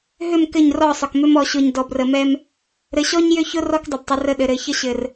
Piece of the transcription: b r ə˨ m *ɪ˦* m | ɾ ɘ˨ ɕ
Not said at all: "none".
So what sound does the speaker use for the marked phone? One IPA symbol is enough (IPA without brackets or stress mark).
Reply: ɛ˦